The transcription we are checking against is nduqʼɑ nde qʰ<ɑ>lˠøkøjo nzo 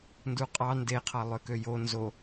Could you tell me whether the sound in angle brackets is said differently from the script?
no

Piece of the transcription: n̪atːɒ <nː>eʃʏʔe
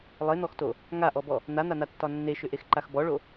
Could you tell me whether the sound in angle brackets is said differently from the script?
no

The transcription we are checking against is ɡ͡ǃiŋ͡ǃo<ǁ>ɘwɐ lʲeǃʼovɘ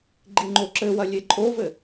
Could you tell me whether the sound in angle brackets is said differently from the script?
no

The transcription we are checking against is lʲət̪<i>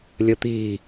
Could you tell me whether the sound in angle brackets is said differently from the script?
no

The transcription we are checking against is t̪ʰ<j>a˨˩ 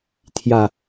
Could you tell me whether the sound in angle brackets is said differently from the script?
no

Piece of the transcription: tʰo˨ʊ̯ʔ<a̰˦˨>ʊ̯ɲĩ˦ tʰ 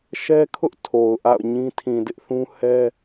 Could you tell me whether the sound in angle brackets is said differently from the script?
no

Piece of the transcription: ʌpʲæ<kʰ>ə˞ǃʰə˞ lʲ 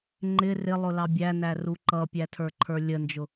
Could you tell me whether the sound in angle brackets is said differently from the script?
yes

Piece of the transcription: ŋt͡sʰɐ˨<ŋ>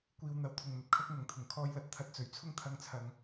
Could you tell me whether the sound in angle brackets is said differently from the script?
no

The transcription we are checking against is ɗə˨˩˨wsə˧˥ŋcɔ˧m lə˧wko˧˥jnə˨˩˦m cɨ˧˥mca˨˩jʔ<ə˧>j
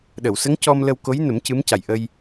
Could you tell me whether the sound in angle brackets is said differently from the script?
no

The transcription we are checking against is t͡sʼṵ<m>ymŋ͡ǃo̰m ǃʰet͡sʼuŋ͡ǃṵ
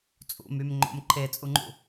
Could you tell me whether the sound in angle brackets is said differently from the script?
no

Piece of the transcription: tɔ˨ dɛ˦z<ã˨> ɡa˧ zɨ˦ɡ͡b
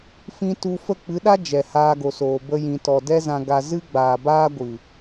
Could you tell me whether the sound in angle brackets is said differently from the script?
yes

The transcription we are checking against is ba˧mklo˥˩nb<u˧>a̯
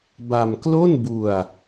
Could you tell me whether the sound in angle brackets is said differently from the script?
no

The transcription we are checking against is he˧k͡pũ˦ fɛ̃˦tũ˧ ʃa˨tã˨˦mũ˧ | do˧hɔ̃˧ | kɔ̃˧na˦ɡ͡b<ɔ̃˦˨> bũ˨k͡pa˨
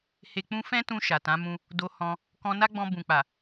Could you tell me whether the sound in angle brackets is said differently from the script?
yes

